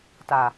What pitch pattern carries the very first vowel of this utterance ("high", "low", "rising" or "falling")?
low